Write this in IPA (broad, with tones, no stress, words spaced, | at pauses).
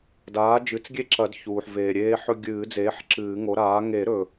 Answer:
daː˩˥ d͡ʒɨ˩˥t͡sɡʲe˦ǁɐ˨˩˦dçuː˩ħ veː˩ɾʲeː˦ħɵ˦ ɡʲɨː˨˩˦d͡zeː˩˥ħ ǁɨː˨˩˦ŋo˩˥ɾaː˩˥ ŋe˨˩˦ɾɵ˩